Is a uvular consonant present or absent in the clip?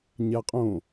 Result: present